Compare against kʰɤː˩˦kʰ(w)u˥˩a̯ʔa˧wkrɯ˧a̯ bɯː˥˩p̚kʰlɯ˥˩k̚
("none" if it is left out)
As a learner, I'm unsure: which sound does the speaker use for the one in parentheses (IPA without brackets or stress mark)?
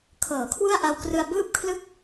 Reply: w